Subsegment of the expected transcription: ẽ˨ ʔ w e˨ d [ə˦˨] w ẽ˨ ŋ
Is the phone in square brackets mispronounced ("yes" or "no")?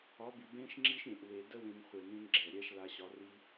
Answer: no